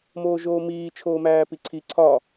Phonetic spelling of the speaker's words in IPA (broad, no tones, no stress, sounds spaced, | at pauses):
m oː ʒ oː m iː t͡ʃʰ oː m æː p i ǀʰ i ǀʰ ɒ